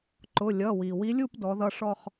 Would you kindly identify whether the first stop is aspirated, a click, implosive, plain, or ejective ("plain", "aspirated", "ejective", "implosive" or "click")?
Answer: click